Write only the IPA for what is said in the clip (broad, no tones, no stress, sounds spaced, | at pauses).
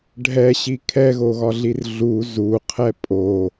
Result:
ɖʱ ɛ ɕ i kʰ ɛ ɣ o ɣ ɒ ɮ i r ɮ u z u qʰ ɛ pʼ o